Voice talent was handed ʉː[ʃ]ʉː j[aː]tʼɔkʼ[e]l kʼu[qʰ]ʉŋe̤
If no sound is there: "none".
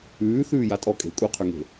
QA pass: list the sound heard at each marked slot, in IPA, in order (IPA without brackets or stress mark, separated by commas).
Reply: θ, a, e̤, qʰ